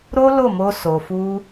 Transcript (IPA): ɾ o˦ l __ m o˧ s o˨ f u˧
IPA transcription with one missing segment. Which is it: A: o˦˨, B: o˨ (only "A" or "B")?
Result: A